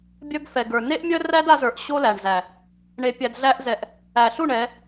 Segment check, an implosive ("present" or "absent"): absent